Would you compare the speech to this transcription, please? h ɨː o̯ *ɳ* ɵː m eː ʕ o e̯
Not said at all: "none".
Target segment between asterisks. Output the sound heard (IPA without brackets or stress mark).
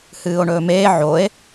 ɳ